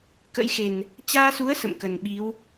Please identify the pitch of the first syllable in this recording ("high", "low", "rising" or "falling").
rising